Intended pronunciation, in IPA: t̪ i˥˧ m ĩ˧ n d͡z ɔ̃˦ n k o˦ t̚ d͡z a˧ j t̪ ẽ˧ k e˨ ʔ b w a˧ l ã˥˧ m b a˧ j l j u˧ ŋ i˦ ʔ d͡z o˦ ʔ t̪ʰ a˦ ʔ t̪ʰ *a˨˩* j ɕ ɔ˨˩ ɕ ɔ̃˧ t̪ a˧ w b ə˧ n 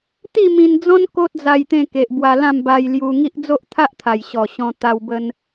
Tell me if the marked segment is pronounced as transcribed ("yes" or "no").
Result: yes